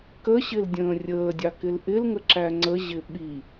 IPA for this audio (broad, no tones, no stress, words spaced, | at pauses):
kəɕɪl dʲə̃ːrʲəːdʲɑ kɪlʔɪlŋə ǁæŋ͡ǀəʑɪ ɓi